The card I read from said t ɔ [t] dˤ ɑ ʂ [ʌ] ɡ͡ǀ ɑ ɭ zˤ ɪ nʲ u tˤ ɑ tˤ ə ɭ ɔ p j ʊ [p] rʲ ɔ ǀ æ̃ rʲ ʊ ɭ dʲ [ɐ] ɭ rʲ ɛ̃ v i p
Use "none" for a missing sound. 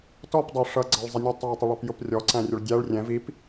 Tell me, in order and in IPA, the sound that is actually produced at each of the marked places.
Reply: p, ʌ, p, æ

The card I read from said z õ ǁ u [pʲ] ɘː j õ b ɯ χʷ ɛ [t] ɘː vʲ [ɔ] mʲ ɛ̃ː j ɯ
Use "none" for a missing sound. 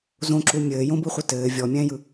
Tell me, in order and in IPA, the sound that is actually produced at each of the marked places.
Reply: mʲ, t, ɔ

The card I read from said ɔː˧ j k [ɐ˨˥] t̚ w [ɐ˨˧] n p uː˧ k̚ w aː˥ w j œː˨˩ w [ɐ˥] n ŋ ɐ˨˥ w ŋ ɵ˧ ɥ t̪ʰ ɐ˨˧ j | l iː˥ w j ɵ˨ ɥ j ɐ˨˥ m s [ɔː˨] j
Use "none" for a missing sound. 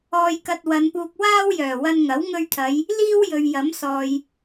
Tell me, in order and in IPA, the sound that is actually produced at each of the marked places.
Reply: ɐ˧, ɐ˨˧, ɐ˧, ɔː˨

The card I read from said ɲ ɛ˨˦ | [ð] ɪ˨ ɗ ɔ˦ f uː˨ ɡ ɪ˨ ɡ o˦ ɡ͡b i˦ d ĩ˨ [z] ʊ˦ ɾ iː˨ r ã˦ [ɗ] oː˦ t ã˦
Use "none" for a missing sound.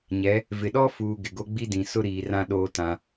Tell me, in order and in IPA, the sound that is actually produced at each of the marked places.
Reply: v, s, ɗ

